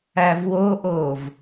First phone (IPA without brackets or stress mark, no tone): æ